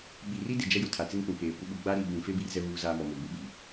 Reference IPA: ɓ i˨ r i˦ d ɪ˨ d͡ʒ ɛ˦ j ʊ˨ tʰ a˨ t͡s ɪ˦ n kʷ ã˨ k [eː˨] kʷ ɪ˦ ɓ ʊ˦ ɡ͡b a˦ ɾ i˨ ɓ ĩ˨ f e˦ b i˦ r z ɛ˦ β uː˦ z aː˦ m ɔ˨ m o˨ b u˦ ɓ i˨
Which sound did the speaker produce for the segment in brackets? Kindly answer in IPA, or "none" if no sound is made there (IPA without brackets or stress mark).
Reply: eː˨